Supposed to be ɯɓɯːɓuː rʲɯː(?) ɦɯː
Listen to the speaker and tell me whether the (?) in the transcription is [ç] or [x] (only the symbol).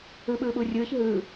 ç